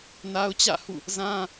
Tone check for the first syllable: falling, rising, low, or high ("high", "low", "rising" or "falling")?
high